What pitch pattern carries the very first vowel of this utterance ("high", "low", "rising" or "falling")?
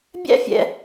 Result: high